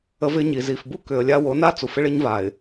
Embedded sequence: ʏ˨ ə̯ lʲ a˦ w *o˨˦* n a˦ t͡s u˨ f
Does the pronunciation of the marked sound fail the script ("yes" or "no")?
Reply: no